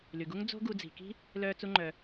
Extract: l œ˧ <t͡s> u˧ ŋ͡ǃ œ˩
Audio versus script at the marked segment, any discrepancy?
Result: no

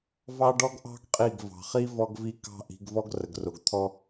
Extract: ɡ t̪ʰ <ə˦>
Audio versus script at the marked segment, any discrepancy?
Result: yes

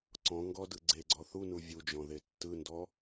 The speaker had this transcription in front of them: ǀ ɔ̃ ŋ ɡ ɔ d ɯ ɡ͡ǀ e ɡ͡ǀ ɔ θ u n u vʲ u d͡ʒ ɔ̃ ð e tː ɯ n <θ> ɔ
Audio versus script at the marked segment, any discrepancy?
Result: yes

